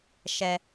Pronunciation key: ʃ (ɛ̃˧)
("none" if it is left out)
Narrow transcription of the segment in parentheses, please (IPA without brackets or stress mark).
ɛ˧